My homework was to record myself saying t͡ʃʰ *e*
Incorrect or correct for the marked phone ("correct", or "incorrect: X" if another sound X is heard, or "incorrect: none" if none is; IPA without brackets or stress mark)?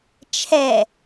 incorrect: ɛ